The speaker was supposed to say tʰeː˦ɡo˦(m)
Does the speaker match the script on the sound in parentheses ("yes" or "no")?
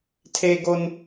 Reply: no